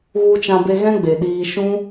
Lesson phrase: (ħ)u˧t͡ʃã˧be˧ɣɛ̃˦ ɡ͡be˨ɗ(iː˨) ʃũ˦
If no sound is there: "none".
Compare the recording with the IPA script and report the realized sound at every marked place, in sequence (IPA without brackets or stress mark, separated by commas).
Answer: ɣ, iː˧